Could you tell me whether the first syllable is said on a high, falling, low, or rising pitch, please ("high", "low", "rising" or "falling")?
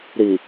low